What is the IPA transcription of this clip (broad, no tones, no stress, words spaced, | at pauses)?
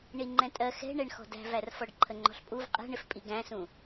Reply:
ɳiŋ͡ǃɛ̃tʼɜ xɛ̤ ɳɛɳxɔ̤dæ̤vær fɔɖǃʰəŋ͡ǃɔ̤ɬpʼuv qʼɛ̤ɳɪfpʼi ɡæ̃sũ